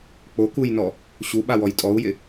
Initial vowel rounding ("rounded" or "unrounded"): rounded